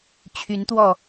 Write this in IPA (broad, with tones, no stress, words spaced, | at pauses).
t͡ɕʰy˨˦nt̪wɔ˥˨